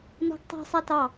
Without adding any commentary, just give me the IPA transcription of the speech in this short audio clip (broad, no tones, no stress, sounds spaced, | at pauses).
n ɔ̤ ɡ tˤ ɛ̤ sˤ ɛ t ɑ